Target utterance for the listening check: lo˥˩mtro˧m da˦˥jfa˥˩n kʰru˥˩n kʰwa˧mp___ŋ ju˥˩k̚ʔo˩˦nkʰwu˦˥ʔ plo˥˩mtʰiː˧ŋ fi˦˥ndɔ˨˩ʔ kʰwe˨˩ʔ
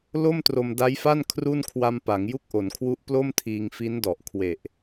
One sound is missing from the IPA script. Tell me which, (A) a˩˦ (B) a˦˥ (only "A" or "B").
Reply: A